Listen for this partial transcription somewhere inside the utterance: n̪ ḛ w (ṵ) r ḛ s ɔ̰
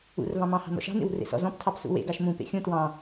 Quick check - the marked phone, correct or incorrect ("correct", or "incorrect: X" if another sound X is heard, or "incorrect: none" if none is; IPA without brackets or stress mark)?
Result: incorrect: ṳ